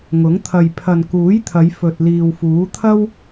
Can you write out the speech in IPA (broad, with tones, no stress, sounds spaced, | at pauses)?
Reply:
ŋ ʊ˨˥ ŋ t̪ʰ ɐ˨ j pʰ ɐ˨ n k uː˨˥ j t̪ʰ ɐ˨˧ j f ɵ˨ t̚ l iː˨ w f uː˨˥ t̪ʰ ɐ˥ w